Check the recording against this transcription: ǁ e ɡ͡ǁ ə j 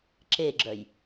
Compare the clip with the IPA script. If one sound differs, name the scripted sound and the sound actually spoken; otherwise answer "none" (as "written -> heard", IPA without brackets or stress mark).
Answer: ə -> œ